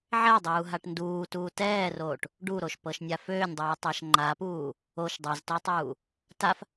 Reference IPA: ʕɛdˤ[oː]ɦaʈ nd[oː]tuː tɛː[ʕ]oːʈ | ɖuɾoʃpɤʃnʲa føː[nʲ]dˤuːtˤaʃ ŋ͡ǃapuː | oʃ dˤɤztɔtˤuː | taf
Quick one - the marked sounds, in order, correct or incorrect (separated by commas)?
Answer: incorrect, incorrect, incorrect, correct